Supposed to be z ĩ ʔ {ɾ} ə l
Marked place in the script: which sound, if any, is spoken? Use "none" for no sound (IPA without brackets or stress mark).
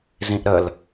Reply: ɾ